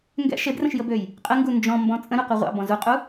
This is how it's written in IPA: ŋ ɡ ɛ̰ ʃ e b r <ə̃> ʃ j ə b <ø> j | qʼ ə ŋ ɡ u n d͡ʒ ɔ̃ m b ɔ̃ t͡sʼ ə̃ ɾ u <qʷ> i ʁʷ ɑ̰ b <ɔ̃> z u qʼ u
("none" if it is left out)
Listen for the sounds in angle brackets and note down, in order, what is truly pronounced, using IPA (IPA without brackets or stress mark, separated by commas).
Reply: ə̃, ø, qʷ, ɔ̃